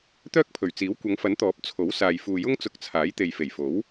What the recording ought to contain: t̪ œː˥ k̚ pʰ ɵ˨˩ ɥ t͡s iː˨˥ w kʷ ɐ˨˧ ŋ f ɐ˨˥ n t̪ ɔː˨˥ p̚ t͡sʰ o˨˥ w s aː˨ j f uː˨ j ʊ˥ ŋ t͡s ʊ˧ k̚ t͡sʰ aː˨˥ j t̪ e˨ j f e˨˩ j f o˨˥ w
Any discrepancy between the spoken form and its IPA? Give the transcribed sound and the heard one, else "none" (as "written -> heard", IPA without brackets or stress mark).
none